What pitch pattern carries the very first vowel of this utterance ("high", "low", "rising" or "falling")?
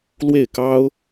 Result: falling